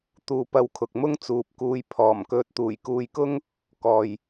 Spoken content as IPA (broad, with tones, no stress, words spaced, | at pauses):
t̪uː˨pɐ˧wkʰʊ˨k̚mʊ˥ŋ t͡suː˨p̚kuː˧j pʰɔː˨˩m kɵ˨t̚t̪uː˨˩j kuː˧jkʊ˥ŋ | kɔː˨j